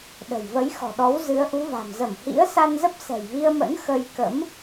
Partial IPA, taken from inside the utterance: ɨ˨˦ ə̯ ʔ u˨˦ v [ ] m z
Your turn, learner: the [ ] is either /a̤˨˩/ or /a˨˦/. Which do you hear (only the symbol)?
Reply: a̤˨˩